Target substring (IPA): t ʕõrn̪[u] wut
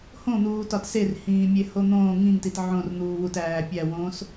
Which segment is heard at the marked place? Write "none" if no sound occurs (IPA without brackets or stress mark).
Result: uː